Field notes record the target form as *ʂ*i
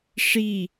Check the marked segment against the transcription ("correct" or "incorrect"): correct